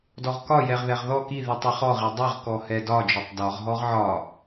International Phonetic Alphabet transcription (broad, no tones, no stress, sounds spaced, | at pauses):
d ɔ ʁ k ɒ j ɛ ʁ ð ɛ ʁ ð ɔ k i ð i tˤ i χ ɔ ʁ i dˤ ɛ ʁ k ɔ h ɛ d ɒ d͡ʒ ɔ tˤ d ɒ ʁ ɦ ɔ ʁ ʕ ɒ